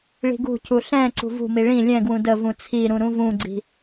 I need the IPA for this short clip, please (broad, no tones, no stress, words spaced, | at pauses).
ɭi̤ɡṳcu ɬɛ̃ ǀṳvṳmi ɭĩ lʲɛ̃ɡwũ dəvũ t͡sʰiɾũ ɾũvũɡ͡ǀi̤